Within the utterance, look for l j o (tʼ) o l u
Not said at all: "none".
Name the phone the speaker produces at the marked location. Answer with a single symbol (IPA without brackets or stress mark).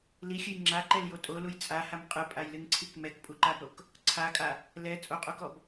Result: tʼ